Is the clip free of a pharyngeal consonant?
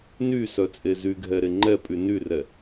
yes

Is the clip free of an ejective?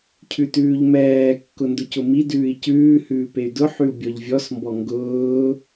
yes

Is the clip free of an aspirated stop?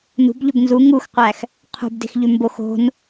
no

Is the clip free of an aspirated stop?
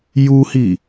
yes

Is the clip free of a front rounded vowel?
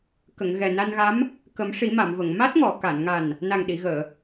yes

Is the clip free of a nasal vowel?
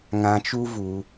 no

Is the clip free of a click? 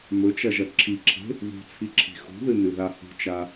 no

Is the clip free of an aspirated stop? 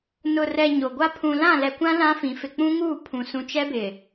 no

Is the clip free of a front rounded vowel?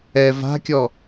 yes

